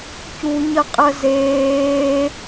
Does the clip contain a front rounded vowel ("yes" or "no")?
no